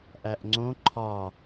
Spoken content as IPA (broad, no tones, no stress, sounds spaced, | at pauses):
ʔ æ ʔ ŋ͡ǀ õ ǃʰ ɒ